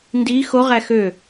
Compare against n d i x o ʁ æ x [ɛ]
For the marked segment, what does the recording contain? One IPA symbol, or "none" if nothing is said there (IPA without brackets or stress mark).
ø